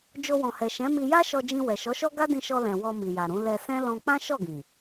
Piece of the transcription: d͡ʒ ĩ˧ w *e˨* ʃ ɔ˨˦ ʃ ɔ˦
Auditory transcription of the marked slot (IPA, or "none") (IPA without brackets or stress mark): ɛ˨